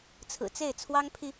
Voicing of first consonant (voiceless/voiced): voiceless